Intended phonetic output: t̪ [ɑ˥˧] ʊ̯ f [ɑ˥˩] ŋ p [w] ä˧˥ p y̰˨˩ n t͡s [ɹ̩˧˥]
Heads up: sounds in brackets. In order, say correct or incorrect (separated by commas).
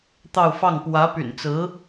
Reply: correct, correct, correct, correct